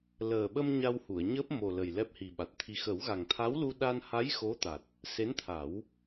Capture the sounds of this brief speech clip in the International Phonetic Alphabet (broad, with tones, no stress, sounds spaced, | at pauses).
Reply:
l əː˨˩ ɓ ə˧ m ɲ a˧ w h u˨˩˨ ə̯ ɲ əː˦˥ p̚ m o˨˩ l ə˨˩ j l ɛ˦˥ p̚ h i˨˩ ɓ a˨˩ t̚ t̪ʰ i˧ x ə˨˩˦ w ɣ a˨˩ ŋ t̪ʰ a˧˥ w l u˧ ɗ a˧ n h a˧˥ j x o˧˥ t̪ a˨˩ t̚ | s e˧˥ n t̪ʰ a˨˩˦ w